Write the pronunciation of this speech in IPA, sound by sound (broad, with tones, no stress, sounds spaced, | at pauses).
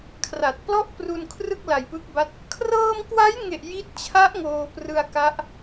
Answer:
kʰ r a˨˩ t̚ p l ɔ˥˩ ʔ p r u˧ n kʰ r ɯ˥˩ k̚ l a˨˩ j p ɯ˦˥ k̚ b a˦˥ t̚ | kʰ r ɤː˧ m k w a˦˥ j ŋ e˨˩ ʔ j i˦˥ t̚ t͡ɕʰ a˦˥ ʔ ŋ oː˧ p r ɯ˧ a̯ k a˦˥ ʔ